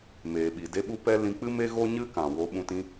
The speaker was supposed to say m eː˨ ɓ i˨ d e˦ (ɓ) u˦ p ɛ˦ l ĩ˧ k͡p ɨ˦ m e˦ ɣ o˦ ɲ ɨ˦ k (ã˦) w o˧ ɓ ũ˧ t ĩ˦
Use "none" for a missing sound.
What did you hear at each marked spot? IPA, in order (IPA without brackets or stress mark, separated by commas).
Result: ɓ, ã˨